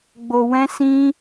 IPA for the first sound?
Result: ɡ͡b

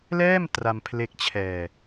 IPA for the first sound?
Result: l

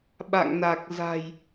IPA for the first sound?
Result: ɓ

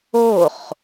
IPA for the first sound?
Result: o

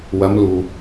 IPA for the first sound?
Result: w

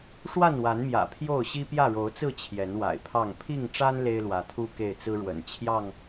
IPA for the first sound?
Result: ʂ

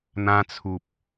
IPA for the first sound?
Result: n̪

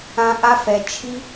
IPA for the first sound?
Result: ã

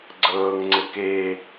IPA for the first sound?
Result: ɡ͡ǀ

